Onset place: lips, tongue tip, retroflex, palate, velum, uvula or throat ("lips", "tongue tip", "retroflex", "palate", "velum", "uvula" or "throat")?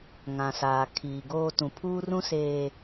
velum